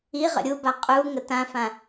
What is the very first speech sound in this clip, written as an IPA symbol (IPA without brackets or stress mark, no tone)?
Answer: i